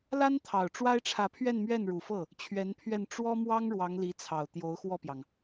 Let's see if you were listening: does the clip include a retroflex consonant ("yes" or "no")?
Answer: yes